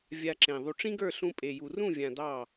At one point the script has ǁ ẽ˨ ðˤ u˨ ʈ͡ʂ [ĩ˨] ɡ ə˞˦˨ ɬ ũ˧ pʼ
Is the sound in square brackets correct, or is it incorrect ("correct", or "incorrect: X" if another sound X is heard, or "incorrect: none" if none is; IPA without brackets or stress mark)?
incorrect: ĩ˦